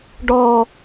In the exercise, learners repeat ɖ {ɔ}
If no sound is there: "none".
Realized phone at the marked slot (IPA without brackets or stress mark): ɔ